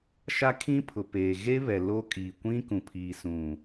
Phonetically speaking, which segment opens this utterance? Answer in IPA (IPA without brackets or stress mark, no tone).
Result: ʃ